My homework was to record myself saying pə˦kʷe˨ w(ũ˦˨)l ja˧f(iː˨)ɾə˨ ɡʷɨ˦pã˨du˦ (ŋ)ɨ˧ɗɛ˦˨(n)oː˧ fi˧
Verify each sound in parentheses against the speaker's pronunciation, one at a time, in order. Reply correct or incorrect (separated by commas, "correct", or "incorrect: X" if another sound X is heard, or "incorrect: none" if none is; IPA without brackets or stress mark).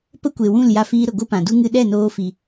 correct, incorrect: iː˧, correct, correct